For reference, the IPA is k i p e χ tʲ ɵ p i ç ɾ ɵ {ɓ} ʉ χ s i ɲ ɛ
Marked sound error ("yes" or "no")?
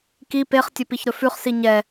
yes